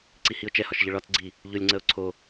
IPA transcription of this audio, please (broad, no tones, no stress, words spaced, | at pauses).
ǀihiʊ̯t͡ʃɛhɒʃ ʎəɭɒt͡sɡ͡ǀi | ʎʊlʲŋ͡ǀəʊ̯ ǀʰo